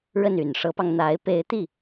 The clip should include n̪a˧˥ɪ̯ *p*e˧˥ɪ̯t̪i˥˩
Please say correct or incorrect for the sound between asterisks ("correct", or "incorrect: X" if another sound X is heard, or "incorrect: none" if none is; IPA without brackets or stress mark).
correct